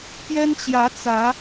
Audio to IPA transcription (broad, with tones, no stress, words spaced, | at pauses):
pjɛ˦nt͡ɕjä˨˦t͡sä˨˦